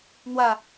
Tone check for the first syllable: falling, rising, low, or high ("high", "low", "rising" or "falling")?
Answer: falling